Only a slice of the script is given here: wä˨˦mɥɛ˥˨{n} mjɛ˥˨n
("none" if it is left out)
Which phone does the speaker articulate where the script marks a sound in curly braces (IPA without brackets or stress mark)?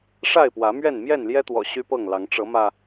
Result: n